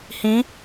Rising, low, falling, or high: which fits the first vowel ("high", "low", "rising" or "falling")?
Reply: rising